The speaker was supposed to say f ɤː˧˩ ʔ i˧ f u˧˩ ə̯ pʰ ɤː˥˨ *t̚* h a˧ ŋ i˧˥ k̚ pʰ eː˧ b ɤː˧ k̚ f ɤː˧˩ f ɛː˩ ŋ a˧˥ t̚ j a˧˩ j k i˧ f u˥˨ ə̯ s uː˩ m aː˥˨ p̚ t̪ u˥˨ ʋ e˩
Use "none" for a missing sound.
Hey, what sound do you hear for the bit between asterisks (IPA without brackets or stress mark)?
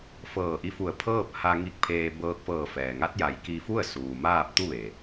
p̚